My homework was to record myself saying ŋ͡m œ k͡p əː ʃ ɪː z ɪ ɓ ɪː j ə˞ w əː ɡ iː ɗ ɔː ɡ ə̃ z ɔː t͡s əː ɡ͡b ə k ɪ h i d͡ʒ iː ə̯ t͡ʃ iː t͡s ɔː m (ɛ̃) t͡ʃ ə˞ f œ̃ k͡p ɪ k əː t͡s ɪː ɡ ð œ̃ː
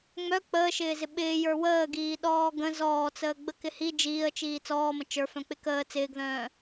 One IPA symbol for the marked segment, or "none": ə̃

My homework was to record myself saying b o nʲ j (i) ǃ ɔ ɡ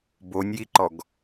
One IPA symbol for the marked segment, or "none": i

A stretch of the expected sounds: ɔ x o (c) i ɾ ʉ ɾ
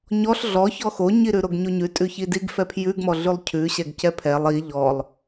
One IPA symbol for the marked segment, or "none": ɲ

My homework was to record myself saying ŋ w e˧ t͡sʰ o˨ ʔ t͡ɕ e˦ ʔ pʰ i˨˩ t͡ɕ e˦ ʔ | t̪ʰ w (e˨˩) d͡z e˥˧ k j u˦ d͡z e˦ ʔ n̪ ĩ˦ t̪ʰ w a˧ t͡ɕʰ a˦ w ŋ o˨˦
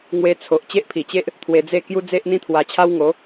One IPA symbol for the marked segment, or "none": e˧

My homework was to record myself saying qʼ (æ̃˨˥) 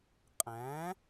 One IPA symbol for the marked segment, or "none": æ̃˨˥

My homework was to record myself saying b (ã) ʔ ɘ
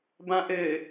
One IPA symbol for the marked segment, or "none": ã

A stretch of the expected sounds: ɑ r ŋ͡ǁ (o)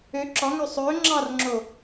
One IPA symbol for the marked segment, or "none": o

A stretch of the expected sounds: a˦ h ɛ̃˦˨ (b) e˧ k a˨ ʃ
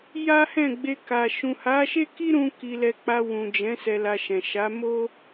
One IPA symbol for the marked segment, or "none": ɡ͡b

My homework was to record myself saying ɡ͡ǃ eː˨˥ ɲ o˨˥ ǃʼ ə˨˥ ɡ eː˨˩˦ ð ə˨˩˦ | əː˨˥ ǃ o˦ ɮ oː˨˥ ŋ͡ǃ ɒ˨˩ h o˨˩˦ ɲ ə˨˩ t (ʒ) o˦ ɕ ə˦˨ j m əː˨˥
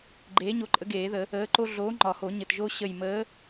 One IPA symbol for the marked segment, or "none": ʒ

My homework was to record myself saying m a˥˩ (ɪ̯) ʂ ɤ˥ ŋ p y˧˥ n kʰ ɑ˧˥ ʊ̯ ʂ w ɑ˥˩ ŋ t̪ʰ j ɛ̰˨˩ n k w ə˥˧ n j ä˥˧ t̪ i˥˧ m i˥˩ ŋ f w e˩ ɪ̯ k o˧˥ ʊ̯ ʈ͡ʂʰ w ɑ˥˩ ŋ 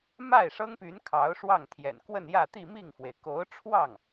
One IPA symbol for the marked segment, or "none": ɪ̯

